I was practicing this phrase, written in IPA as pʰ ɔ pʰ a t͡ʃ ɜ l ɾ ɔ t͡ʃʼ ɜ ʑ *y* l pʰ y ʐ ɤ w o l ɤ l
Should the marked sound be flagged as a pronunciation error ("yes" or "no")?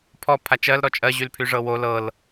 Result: no